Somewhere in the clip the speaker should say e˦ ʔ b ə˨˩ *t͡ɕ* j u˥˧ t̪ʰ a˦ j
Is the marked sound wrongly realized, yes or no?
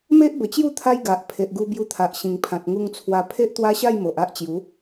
no